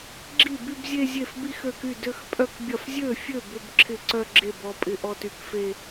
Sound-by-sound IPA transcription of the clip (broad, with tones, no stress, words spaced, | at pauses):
ɡ͡ǁi˥˩ by˥˧bzʲe˥˧zʲe˥˩f bi˥˧xø˥˩ky˥˩ dø˥˧x pʼœ˥˧kbʲɐ˥˩f zʲø˥˩fʲø˥˩ bʏ˥˧bǁʰɪ˥˩ǀœ˥˧ ɡ͡ǁe˥˩b ɔ˥˧pʼɪ˥˧ʔɔ˥˧t y˥˩kfe˥˧